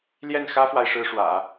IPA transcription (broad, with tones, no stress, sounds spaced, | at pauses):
l j ɛ˥˩ n x ä˥ f w a˨ ɪ̯ ʂ ɻ̩˥ ʂ w ä̰˨˩˦